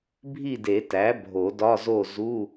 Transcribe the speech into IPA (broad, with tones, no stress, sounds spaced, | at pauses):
bʱ i˥˨ d e˨˩˦ t æ˩˥ bʱ o˨˩˦ d ɒ˧˥˧ z o˥˨ z u˧˥˧